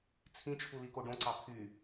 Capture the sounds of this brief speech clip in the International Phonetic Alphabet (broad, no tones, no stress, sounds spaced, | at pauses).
t͡sʰ ĩ t͡ʃʰ u l i k o ɖ õ ǀ ɑ pʰ y